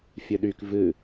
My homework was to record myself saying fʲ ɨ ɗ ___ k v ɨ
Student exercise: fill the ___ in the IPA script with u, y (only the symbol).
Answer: y